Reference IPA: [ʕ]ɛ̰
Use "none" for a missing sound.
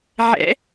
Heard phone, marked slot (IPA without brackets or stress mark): ʕ